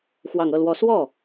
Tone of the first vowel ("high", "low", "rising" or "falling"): low